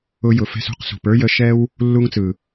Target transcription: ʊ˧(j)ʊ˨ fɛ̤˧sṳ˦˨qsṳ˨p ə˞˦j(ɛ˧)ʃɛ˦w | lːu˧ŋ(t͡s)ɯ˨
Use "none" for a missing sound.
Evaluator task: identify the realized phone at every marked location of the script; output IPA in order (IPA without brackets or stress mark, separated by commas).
j, ə˧, t͡s